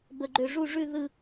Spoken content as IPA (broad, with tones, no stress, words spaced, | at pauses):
bə˩ɡ͡ǃø˩ ʐu˧˩ʐʉ˧˩ ðɯ˧˩